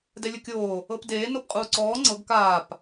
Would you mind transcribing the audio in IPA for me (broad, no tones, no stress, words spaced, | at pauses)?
dɛlʲɯkʲoː | ɤpdeː nopqʼuːǀɔː ŋ͡ǀɤɡ kaːp